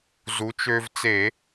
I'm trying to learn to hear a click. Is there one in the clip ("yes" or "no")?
no